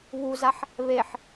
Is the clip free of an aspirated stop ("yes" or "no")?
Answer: yes